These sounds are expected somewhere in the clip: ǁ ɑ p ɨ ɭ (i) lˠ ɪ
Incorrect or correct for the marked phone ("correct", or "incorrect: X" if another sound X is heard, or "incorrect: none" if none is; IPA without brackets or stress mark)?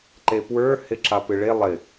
incorrect: e